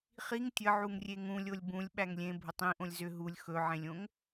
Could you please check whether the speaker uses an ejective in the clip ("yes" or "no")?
no